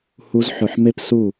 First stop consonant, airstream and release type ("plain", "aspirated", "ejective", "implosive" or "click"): plain